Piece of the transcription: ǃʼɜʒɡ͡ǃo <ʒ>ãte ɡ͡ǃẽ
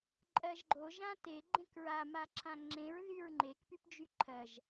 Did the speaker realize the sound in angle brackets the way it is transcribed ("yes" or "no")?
yes